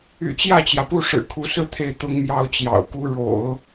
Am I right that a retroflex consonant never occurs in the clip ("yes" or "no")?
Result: no